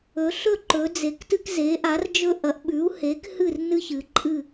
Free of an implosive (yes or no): no